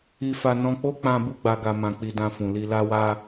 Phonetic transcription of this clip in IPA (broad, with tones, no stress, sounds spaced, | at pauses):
i˧ f a˧ n ɔ̃˧ k͡p o˦ k͡p ã˧ b u˦ ɡ͡b a˧ ɡ a˧ m ã˧ k͡p i˧ d ã˧ f ũ˨ l i˧ l a˦ w a˦